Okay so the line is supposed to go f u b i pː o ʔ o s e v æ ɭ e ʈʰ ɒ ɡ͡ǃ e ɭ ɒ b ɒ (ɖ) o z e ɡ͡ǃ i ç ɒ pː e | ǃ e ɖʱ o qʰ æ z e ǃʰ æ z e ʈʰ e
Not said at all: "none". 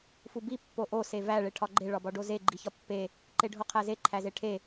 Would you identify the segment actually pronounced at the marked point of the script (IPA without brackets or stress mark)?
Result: ɖ